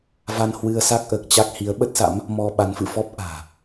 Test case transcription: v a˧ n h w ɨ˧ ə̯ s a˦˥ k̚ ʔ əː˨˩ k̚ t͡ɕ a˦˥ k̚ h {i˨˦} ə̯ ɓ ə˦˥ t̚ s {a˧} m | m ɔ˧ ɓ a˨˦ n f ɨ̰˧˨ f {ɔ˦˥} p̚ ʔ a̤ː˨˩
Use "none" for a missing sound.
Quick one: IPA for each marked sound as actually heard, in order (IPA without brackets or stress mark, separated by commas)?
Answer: i˨˦, a̰˧˥, ɔ˦˥